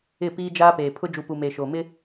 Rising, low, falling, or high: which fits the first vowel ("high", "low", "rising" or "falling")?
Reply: falling